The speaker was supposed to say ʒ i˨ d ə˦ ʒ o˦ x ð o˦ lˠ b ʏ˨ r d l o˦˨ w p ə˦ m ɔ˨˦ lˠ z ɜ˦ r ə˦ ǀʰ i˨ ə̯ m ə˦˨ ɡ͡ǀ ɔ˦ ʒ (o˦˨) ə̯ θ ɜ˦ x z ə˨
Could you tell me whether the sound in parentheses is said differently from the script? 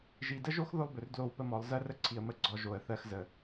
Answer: yes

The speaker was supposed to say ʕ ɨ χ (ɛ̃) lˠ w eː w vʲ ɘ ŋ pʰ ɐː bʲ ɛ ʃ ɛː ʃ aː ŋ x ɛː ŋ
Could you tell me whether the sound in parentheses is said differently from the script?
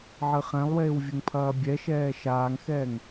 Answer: no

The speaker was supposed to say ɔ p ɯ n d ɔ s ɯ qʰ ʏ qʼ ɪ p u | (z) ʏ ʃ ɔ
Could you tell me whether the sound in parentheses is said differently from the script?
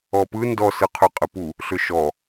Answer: yes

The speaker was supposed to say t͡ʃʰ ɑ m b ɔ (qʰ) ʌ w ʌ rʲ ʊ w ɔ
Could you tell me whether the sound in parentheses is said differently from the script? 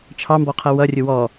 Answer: no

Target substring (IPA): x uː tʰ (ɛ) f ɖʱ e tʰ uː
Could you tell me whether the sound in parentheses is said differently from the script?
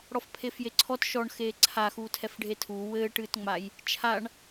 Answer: no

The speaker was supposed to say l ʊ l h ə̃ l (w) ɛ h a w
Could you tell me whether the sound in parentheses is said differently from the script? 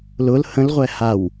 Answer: yes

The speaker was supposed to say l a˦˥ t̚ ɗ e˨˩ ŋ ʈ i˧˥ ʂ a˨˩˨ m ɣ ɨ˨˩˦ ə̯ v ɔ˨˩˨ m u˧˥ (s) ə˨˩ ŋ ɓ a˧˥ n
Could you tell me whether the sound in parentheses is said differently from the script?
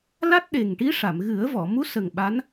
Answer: no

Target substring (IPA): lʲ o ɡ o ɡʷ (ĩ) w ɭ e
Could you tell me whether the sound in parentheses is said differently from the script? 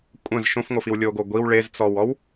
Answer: yes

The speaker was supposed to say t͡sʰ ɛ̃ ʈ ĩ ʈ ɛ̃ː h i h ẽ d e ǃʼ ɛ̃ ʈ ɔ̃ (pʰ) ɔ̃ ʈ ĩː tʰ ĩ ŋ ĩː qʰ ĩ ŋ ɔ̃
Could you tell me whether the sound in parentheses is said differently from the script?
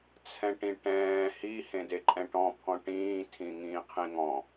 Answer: no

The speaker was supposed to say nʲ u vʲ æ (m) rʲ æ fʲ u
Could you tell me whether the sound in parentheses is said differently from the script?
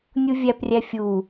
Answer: yes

